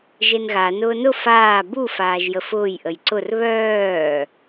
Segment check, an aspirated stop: absent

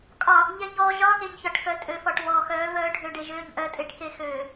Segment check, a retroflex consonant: present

